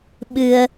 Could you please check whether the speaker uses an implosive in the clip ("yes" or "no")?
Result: yes